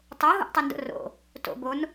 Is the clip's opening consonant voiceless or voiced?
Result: voiceless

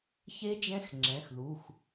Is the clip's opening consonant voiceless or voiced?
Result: voiceless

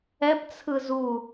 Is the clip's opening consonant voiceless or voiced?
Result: voiceless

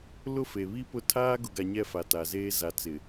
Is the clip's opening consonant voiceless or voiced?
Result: voiced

